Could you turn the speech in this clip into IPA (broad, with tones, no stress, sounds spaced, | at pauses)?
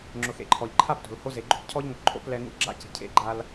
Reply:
ŋ͡ǁ ʊ˨ x ḛ˨ ǃʰ ɔ˨ ʎ ǃʰ a˦ p t o̤˨ l h o˦ z e˨ ɡ͡ǃ o̤˦ p cʰ ɔ˦ ʎ ŋ ʊ˨ ǃʼ o̰˦ p l ɛ˦ ŋ ṵ˦ ɡ͡ǁ a̰˦ c i̤˨ cʰ ḛ˦ ɡ͡ǃ a˦ l